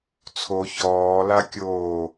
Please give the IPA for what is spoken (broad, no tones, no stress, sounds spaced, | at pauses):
t͡sʰ o ç ɔː l a kʲ oː